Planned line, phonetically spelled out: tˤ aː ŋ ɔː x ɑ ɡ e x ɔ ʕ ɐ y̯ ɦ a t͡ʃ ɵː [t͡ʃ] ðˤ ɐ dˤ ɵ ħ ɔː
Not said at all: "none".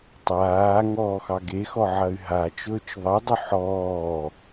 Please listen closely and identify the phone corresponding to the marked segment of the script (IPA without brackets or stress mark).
t͡ʃ